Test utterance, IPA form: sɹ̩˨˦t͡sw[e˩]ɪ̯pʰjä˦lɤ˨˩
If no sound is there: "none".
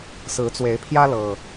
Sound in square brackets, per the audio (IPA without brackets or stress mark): e˨˦